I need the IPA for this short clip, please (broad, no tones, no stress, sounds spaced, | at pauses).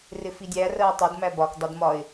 r ɪ f i dʲ æ r ɜ ʊ̯ tˤ ʊ d m æ b ɒ k dˤ ʌ d m ɒ ɪ̯